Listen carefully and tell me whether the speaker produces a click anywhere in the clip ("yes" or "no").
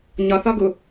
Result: no